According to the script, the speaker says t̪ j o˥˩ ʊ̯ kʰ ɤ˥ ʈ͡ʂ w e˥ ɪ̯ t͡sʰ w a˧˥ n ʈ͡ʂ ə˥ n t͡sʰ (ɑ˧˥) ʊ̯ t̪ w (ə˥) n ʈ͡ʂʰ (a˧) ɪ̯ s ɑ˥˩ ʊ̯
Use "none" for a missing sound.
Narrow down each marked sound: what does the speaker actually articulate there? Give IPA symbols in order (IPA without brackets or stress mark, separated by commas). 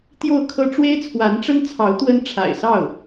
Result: ɑ˧˥, ə˥, a̰˨˩